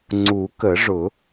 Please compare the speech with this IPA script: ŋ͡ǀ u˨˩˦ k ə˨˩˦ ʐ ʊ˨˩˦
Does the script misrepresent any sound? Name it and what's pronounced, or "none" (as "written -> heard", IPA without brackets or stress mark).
none